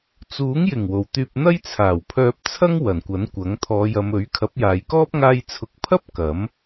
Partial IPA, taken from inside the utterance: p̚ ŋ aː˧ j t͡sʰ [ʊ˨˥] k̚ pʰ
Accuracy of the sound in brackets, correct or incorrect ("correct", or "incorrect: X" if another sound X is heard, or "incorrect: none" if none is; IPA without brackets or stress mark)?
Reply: correct